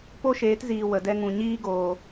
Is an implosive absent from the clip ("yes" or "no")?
yes